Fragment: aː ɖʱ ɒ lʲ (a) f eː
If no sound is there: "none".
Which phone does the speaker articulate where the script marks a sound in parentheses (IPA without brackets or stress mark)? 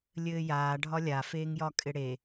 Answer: a